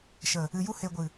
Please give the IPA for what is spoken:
ʃ ə˨ | ɨ˨ j u˧ h e˨ ɡʷ ɨ˨

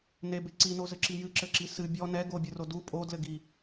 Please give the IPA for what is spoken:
n e b e ǀ i n o z ɘ ǁ i j ɨ ǁ ɘ ǁ i s ɨ bʲ ɔ n ɛ ɡ o bʲ ɨ r o d u pʼ o d l ɘ ɡ i

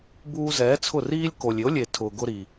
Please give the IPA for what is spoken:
b uː˧ z ɛː˨˦ t͡sʰ ʊ˦˨ r iː˦ lʲ k o˨ lʲ ɪ˨˦ o̯ lʲ e˨ tʰ ʊː˨ ɡ ʊ˦ ɾ i˧

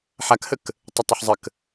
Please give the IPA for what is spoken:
ħ a k h ə k | tˤ ə tˤ ə ħ zˤ ə k

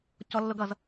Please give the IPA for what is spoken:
c ɔ lː ʊ ɡ ʌ z

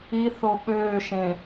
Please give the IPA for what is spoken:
i θ o ɓ øː ʃ ẽ

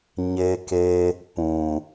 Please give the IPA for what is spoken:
ɲ e˦ k e˦ | p ũ˨

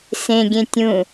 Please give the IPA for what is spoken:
s ẽ ɡʲ ẽ tʲ ũ

